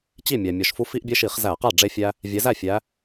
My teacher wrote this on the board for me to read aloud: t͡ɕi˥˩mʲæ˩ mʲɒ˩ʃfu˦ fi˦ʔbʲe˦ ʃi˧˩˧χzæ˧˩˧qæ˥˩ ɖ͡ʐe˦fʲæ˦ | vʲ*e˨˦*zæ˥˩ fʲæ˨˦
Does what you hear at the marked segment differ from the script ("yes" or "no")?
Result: no